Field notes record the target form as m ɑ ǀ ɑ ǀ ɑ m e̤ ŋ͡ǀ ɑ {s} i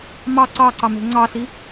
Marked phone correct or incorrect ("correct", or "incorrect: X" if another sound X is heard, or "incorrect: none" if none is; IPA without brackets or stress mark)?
correct